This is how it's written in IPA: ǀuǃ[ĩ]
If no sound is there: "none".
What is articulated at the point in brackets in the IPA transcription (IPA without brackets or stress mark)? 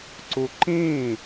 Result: ĩ